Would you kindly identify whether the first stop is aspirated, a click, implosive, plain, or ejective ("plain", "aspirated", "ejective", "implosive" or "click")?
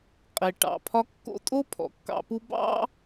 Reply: ejective